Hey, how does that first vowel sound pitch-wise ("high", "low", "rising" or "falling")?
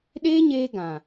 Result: high